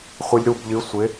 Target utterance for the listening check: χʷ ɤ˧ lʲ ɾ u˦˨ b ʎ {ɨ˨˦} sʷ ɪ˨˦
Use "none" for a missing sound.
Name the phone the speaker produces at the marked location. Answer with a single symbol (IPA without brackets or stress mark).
ɨ˨˦